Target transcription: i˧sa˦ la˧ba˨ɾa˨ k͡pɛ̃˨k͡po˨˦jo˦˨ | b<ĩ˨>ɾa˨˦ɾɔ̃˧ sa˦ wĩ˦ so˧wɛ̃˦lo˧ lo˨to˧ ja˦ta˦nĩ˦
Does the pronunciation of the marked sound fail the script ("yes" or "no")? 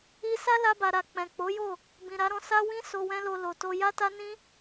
no